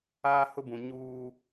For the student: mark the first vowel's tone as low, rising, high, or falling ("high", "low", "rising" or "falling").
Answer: high